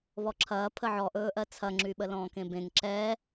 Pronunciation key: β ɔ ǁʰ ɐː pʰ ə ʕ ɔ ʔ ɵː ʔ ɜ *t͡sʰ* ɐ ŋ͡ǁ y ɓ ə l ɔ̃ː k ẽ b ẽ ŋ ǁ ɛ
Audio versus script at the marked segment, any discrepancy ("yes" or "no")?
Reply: no